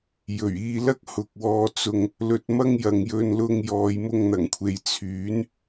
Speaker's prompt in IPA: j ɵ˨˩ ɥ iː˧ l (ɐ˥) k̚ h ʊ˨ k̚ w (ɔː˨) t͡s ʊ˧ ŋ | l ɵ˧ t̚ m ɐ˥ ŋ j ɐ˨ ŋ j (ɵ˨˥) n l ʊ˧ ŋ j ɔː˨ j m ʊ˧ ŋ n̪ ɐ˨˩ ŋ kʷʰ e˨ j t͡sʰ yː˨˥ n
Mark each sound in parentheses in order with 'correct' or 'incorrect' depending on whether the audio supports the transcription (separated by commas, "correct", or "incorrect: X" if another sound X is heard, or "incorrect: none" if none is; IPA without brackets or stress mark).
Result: correct, incorrect: ɔː˧, incorrect: ɵ˧